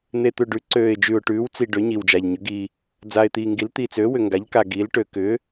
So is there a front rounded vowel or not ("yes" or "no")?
yes